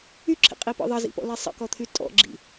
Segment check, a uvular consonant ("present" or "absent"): present